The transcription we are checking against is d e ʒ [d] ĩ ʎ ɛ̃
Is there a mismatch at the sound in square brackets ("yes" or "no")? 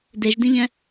no